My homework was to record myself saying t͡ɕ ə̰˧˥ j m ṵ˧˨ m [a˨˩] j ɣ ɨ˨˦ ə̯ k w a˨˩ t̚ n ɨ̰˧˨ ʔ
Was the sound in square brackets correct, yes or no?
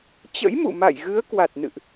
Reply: no